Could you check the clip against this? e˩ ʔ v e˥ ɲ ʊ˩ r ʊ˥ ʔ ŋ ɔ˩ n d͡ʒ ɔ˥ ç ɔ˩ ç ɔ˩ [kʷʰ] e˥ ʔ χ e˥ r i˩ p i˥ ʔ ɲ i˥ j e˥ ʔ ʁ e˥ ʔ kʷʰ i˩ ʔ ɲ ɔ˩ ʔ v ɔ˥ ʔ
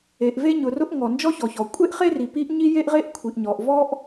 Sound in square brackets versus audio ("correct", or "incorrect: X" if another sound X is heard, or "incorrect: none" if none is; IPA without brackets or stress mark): incorrect: kʷʼ